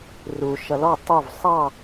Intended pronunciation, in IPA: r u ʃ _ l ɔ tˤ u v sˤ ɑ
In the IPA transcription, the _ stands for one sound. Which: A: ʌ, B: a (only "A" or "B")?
A